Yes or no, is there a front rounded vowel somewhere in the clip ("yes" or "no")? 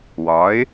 no